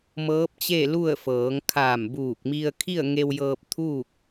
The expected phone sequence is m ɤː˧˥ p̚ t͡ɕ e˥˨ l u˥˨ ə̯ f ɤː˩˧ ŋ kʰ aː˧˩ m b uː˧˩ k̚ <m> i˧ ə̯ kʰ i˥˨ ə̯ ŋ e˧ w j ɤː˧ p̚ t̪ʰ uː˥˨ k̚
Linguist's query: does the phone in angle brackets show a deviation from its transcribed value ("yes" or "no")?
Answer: no